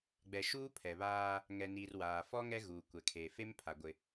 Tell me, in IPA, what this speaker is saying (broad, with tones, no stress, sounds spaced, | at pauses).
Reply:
ɡ͡b ɛ˨ ʃ uː˦ pʰ ɛ˨ β aː˦ | ŋ ɛ˨ n iː˨ r w aː˨ f ɔ˦ ŋ ɛ˦ ɣ uː˨ kʷ ɛ˨ kʰ eː˨ f e˦ m pʰ a˨ ɡʷ ɪ˦